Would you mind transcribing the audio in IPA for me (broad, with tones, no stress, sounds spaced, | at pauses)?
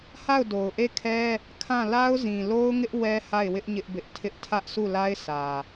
h a˦˨ ʊ̯ d o˨ ʊ̯ ʔ e˦˨ kʰ ɛ˦ | kʰ ã˦˨ l a˦ ʊ̯ z ĩ˨ l o˦ ʊ̯ ŋ ɪ˦ ʔ w ɛ˦ h a˦˨ ɪ̯ w ɪ˦ ʔ ɲ ɪ˦ ʔ b ɪ˦ ʔ tʰ ɪ˦ ʔ tʰ ä˦ ʔ sʰ u˦˨ l a˦ ɪ̯ sʰ ä˨